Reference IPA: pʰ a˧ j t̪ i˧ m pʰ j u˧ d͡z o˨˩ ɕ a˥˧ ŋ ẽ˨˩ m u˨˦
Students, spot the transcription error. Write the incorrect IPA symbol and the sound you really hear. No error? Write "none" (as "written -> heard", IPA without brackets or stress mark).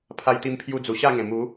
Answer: o˨˩ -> u˨˩